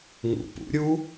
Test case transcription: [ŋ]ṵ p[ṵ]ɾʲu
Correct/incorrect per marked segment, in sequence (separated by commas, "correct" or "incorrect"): correct, correct